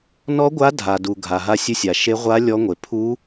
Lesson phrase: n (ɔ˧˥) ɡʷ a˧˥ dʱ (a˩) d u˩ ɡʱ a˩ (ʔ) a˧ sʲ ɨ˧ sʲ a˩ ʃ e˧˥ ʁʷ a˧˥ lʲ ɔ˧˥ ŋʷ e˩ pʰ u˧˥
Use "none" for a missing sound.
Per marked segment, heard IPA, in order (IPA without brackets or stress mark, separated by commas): ɔ˧˥, a˩, ɦ